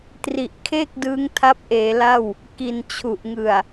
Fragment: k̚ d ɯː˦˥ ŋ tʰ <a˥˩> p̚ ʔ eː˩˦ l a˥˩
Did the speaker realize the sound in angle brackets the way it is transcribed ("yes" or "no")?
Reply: no